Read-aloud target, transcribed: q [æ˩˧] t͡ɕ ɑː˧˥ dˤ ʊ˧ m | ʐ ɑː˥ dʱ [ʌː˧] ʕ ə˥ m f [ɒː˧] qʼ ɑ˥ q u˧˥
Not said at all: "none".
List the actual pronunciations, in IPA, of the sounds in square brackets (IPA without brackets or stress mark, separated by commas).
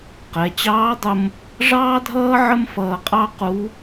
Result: ɛ˩˧, ʌː˥, ʌː˧